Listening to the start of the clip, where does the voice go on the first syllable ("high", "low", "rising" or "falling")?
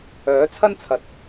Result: rising